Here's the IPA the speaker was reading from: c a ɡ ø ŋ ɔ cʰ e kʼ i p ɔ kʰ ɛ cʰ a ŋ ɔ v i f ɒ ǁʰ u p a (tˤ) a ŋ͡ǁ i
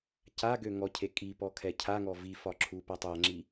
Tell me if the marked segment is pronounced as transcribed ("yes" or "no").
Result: yes